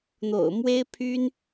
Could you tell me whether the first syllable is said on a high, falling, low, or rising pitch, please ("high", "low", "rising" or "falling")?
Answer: low